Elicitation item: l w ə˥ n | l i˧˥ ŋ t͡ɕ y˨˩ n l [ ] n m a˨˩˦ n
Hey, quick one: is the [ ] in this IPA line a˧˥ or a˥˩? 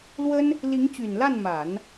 a˥˩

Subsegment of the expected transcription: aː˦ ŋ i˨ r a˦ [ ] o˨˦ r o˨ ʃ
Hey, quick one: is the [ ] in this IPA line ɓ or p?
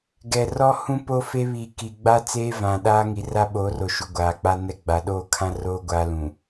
ɓ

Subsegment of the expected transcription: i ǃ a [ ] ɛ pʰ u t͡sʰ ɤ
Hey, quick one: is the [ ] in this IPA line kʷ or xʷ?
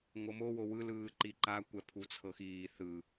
kʷ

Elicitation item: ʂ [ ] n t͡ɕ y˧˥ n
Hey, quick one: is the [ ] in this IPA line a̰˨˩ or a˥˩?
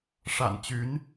a̰˨˩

